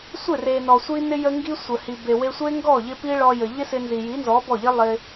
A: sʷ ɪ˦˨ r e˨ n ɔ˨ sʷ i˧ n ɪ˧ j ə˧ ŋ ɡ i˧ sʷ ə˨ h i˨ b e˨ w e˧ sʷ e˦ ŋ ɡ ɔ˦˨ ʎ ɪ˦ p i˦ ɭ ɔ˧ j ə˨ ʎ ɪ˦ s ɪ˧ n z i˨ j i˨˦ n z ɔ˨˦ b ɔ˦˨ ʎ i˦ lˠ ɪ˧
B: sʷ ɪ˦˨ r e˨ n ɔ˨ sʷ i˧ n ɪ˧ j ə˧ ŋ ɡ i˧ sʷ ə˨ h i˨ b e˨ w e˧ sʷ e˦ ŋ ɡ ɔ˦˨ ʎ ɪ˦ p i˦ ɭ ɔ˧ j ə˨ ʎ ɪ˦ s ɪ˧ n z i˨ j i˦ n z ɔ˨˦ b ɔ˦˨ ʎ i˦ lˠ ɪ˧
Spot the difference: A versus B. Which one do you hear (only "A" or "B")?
A